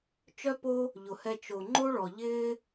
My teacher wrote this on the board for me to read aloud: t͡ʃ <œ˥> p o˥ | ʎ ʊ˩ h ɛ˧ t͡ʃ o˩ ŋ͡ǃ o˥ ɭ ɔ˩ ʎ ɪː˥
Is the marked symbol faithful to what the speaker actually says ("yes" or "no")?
yes